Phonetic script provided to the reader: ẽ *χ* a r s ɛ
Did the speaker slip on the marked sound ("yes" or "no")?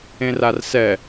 yes